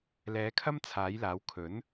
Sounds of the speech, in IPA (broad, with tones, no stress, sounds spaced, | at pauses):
l ɛː˨˥ kʰ ɐ˥ m t͡sʰ aː˨˥ j l aː˨˥ w kʰ ɵ˨˥ n